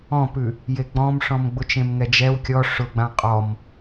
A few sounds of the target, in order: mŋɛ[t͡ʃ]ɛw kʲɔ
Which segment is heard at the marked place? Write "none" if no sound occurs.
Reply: d͡ʒ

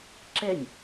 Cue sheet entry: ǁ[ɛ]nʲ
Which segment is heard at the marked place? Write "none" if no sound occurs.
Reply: ɛ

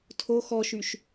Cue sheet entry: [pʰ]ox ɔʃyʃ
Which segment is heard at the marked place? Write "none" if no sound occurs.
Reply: tʰ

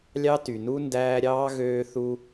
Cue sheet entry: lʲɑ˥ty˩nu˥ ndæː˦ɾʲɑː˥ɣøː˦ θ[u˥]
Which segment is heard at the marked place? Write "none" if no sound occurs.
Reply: u˥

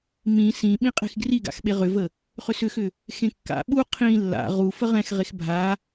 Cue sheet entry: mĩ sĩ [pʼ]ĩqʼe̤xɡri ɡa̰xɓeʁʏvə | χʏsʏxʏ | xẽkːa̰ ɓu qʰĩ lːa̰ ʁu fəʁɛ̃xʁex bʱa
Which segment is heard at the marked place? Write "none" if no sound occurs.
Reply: ɓ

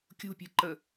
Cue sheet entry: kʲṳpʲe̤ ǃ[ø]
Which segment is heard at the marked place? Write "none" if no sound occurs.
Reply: ə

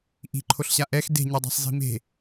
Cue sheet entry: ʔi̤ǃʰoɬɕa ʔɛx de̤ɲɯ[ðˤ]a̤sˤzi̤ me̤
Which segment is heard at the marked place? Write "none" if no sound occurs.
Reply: dˤ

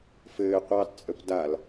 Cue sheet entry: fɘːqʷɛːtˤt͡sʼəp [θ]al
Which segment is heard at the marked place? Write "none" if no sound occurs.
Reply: d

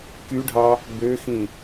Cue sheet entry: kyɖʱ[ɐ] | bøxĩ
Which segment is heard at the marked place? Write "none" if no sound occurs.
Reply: ɑ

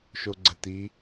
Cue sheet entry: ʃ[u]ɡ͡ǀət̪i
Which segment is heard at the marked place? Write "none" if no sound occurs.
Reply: o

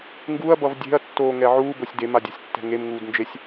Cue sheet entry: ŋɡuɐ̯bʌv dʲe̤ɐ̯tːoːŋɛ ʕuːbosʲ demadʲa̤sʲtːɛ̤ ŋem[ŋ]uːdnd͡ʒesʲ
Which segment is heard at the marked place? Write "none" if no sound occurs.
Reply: ŋ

